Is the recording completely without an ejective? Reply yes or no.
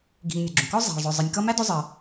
yes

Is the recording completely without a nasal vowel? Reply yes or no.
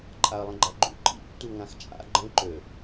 no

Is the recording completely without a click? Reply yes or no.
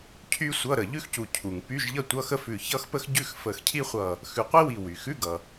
yes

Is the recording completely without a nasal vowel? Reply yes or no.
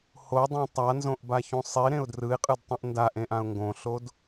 no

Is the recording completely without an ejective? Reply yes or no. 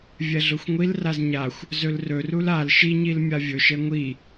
yes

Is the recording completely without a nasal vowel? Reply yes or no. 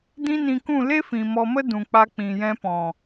no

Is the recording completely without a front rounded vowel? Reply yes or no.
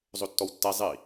yes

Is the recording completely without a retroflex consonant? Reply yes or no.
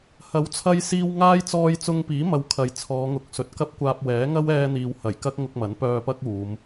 yes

